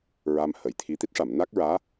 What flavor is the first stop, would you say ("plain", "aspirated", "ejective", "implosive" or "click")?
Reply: aspirated